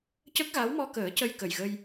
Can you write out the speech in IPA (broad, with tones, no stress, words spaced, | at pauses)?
cə˦˥k̚ɣa˧˥wmɔ˧kəː˨˩˦ cə˧jkə˨˩jɣə˧j